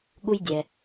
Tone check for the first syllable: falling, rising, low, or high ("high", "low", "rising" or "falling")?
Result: high